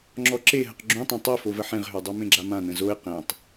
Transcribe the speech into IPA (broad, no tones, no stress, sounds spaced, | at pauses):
ŋ͡ǁ ɔ ǁ e ɦ ə q ɡ͡ǁ ũ tˤ ã tˤ œ f o v ə ħ ẽ ʁ ɦ ø dˤ œ m ẽ ɡ͡ǁ a m ã n ə̃ z o ɪ̯ q ẽ tˤ